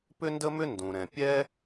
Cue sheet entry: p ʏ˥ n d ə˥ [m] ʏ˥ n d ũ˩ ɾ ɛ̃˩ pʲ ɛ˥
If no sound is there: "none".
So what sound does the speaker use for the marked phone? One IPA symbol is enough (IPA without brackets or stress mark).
m